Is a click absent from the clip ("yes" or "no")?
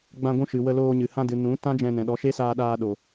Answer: yes